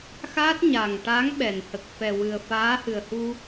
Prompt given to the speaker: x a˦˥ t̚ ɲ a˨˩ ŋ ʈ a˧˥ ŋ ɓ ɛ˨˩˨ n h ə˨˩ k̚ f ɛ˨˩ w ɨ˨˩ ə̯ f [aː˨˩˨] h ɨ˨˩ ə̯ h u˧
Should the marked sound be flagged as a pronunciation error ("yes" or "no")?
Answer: yes